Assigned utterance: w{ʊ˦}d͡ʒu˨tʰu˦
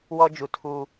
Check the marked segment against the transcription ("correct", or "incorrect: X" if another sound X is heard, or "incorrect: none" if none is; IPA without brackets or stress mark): incorrect: ɔ˦